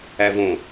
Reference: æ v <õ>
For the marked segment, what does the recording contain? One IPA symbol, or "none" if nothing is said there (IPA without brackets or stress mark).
õ